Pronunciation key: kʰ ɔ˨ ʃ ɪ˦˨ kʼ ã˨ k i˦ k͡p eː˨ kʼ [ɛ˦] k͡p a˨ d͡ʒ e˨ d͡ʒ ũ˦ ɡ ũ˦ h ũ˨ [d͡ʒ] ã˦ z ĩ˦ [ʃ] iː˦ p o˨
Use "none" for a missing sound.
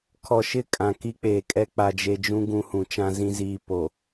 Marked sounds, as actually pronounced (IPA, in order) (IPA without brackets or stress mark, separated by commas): ɛ˦, t͡ʃ, z